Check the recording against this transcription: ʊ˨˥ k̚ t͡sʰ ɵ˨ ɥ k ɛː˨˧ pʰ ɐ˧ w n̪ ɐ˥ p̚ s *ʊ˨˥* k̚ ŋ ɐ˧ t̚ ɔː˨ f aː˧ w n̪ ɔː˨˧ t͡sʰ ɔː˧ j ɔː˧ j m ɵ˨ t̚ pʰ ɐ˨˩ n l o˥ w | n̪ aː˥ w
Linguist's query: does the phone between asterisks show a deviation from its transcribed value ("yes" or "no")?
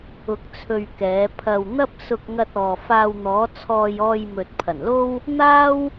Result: yes